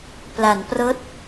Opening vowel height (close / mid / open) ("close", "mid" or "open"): open